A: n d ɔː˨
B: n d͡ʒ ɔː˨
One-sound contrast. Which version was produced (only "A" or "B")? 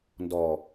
A